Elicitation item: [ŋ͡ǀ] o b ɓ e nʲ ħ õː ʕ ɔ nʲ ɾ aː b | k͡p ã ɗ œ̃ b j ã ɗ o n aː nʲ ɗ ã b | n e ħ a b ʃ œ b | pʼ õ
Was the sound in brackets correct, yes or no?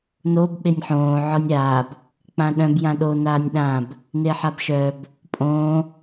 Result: no